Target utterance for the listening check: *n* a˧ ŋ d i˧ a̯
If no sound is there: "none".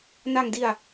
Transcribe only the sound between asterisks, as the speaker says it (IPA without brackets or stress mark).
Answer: n